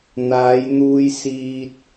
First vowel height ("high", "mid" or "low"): low